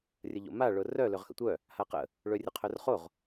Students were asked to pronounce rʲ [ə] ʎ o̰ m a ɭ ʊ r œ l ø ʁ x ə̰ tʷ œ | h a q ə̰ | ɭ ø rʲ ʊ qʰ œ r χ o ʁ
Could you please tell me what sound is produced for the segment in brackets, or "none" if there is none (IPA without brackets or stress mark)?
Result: ə